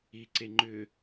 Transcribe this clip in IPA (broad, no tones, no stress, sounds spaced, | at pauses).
i ǀ e ŋ͡ǃ ʏ